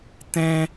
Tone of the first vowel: high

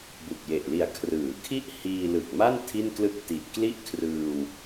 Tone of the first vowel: low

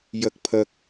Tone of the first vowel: high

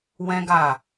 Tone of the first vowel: high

